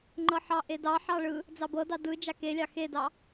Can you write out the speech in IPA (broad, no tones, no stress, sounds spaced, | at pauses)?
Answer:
ŋ͡ǃ ɤ ħ ɑ ʔ e d ɑ ħ ɑ ɭ ɯ | d͡z ɑ b ɤ d ɑ d ɯ d͡ʒ a k e lʲ ɑ x e d ɑ